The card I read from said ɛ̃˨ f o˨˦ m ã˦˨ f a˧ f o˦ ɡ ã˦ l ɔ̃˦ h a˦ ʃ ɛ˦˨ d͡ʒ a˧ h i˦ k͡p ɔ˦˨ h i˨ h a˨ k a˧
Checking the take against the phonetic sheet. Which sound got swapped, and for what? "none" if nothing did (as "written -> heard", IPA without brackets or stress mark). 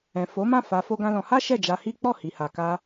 ɔ̃˦ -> ɔ̃˧